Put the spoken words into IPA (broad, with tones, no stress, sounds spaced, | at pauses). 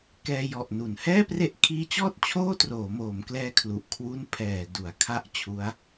k ɛː˧ j ɔ˨˩ ʔ n u˩˦ n h ɛː˥˩ p r e˦˥ ʔ kʰ iː˦˥ t͡ɕ ɔː˥˩ t̚ t͡ɕʰ oː˥˩ t r oː˩˦ m oː˩˦ m k l ɛː˧ kʰ l u˨˩ ʔ kʰ w u˦˥ n pʰ ɛː˨˩ d u˩˦ a̯ kʰ a˦˥ ʔ t͡ɕʰ u˦˥ a̯